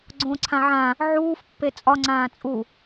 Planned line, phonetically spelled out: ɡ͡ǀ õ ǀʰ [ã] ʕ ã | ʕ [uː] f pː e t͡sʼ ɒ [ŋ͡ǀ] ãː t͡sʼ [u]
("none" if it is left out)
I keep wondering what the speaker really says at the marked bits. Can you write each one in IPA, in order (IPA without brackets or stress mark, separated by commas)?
ã, uː, ŋ͡ǀ, u